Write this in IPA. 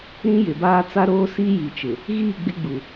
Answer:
ɾ ĩ˦ j ɪ˨ b aː˦ t͡s a˦ ɾ oː˦ s iː˦ j i˨ t͡ʃ ɪ˨ | ɣ iː˦˨ ɡ͡b ɪ˦ ɡ͡b u˨

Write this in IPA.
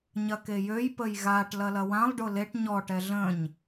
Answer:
ɲ ɐ k e j ø j p ə j ɣ a ʈ l ɐ l ɐ w ã lˠ ɖ ʊ l e ʈ ɲ ɔ ʈ ɛ ɮ ə̃ ɲ

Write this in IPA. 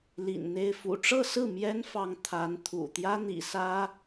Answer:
l ḭ˨˩ n n̪ e˥˩ ɪ̯ f ṵ˨˩ ʈ͡ʂ ɤ˥˧ s ɹ̩˥˩ m j ɛ˥ n f ɑ˧˥ ŋ t̪ʰ a˧˥ n t̪ʰ ṵ˨˩ t̪ j ä˥ n̪ ḭ˨˩ s ä˥

